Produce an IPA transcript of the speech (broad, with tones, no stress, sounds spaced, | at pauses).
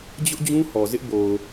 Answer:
d͡ʑ ʊ˦ ʔ d͡ʑ ũ˦ h ɔ˨ z ɪ˦ ʔ b o˨ ʊ̯